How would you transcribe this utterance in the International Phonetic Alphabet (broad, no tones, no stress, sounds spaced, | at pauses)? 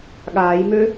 ɠ aː j m ø